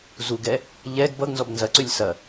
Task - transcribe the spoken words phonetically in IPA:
z u ɡ ɛ | ʎ ɛ ɡ b ʌ ɡ n z ɔ b n z ɐ ǀ ʉ lʲ s ɐ

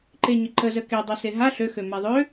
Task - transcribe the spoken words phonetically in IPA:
ǃ e ɲ ə ǃ ə z ə k e dˤ a s e ɦ a ɬ ø x ø m a ðˤ ø

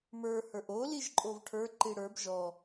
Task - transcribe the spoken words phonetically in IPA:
m ə˞ h ə˞ ʔ o l i ʒ ǃʼ o v ʈʰ ə˞ ǃ i ɽ ə˞ b ʒ ɔ

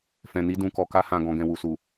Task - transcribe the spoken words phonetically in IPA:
f ɛ̃˨ n i˧ d ũ˨ k ɔ˨ k a˧ h ã˨ ɡ ɔ̃˨ ɡ ɛ̃˨ w u˨ s u˨

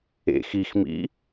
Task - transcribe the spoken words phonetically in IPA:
ḛ x i x m ḭ

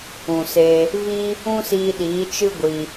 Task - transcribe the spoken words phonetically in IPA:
ũ˨ s e˧ | v i˦ | ũ˦ s iː˧ ɗ iː˨˦ t͡ʃ ɨ˦ ɡʷ i˧

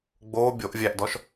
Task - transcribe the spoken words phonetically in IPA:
ɡ͡b oː bʲ o ʔ vʲ æ ʔ d ɔ ʃ

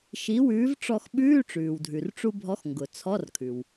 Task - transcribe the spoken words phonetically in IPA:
ʃ i˨˥ w ʉː˨˥ v ʈ͡ʂ ɔ˧ x ɓ ʉː˧˥˧ ʈ͡ʂ ʉː˩ w dʱ ʉ˩ r ʈ͡ʂ u˧ bʱ ɔ˨˥ x ŋ ɡ ʊ˩ t͡sʰ ɔ˧˥˧ r kʰ ʉ˩ w

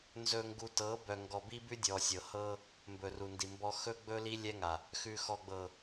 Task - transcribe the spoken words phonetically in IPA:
n z ɵ˨ ŋ ɡ u˨ t ɤ˨˦ b œ˨ ŋ ɡ ɔ˨ b i˦ b ʉ˦ dʲ ɔ˨ sʲ ɤ˨ h ɤ˦ | m b ɵ˨ r u˨ n d i˨ m b ɔ˦ x ɵ˦ ɡ͡b ɵ˦ l i˦ lʲ ɛ˦ ŋ a˨ | x ʉ˨ x ɔ˨ ɡ͡b ɤ˨

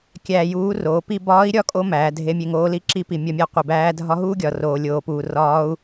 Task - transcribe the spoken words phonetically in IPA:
kʲ æː˧ j uː˧˥ r oː˩˧ p i˧ b ɒː˧˥ i̯ ɾʲ ɒ˧˥ kʼ o˧ m æː˩˧ dʱ e˧˥ mʲ e˧ ŋ oː˧˥ l i˧˥ ǁ i˧˥ p i˩ mʲ ɒ˧ mʲ æ˧ qʷ i˩ b æː˧˥ dʱ ɒ˧˥ ɦ uː˥ ɡʲ ɒ˩ r oː˩ lʲ oː˩ p uː˩ r ɒː˧˥ u̯

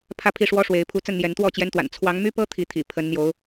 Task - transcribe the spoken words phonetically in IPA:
pʰ ä˥˨ pʰ i˥˨ ʂ w ɔ˦ ʂ w e˨˦ ɪ̯ pʰ u˨˦ t͡s ə˥˨ n n̪ j ɛ˨˦ n t̪ w ɔ˥˨ t͡ɕ j ɛ˦ n t̪ w a̰˨˩ n t͡sʰ w ɑ˨˦ ŋ m y˦ p ɤ˦ t̪ʰ i˨˦ t̪ʰ ḭ˨˩ pʰ ə˨˦ n n̪ j o˨˦ ʊ̯

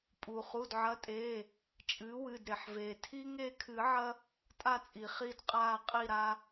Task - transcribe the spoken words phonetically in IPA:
pʼ uː˩ χ u˩˧˩ d ʕ ɐ˩˥ tʼ eː˩˧˩ | t͡ʃʼ ɨː˩˥ w ɨ˩˧˩ d ɾ e˩ ħ v eː˩ tʰ i˦ ŋ e˦˨ kʰ ɨ˨˩˦ ʕ ɐ˦ | tʼ a˦˨ t͡sʼ i˩ χ i˦˨ d qʼ aː˦˨ qʼ i˦˨ ɾ a˦

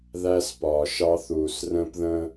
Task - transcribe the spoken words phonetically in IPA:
ð æ˦ s p ɒː˨ ʃ ɑ˦ θ uː˨ s r ə̃ː˦ p ð ə̃˦

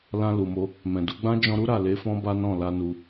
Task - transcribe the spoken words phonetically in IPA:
l ã˧ l u˨ m o˧ | m ɛ̃˨ d u˧ ɡ͡b ã˦ d͡ʒ ɔ̃˧ ɾ u˦ ɾ a˦˨ l e˨˦ f ɔ̃˦ b a˦ n ɔ̃˦˨ l a˧ n u˧

